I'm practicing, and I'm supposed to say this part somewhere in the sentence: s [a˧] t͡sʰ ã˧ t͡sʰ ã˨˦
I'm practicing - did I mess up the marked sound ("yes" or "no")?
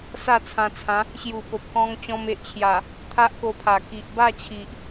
yes